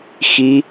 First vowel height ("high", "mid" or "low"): high